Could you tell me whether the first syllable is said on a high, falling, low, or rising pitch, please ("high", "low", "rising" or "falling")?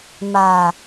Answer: low